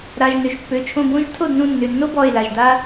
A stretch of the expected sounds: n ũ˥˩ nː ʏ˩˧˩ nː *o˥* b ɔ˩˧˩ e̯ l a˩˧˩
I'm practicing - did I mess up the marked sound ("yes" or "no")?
no